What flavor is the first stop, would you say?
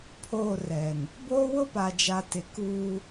aspirated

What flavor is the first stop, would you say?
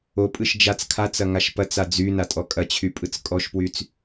ejective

